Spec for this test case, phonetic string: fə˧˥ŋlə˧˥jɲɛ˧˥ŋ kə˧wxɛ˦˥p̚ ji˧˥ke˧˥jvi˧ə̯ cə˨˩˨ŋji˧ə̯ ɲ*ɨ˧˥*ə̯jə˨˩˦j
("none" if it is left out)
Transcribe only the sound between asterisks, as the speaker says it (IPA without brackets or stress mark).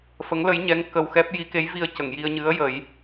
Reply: ɨ˧˥